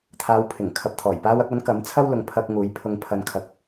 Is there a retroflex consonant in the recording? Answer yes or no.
no